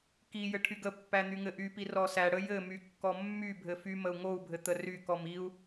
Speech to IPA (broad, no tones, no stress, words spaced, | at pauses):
ki jɘʈʰyɡəpːæ n̪yŋɘʔypi rɔsæɽə jɘmy kːɔmːybʱɘ fy məu̯ŋou̯bʱɘ t̪ərykɔm iu̯